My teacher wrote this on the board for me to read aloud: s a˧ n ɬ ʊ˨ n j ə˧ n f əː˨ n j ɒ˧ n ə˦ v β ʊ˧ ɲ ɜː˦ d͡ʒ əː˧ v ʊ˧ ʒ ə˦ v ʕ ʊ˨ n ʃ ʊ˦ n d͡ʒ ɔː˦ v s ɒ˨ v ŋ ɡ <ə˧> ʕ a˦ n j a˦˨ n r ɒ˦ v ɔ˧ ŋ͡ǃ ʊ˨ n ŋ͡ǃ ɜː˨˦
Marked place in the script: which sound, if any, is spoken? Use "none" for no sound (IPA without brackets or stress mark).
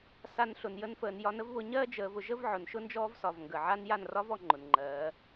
ə˨